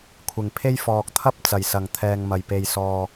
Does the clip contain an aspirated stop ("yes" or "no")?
yes